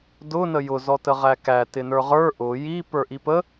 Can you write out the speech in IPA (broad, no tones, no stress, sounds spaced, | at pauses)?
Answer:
d ʊ n ə j ʊ z ɔ t ə ʁ æ k æ t ɪ n ə˞ ʁ ə˞ ʔ ʊ j i p ə˞ ʔ i p ə